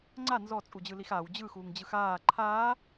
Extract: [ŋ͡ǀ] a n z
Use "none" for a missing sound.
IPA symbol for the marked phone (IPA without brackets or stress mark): ŋ͡ǀ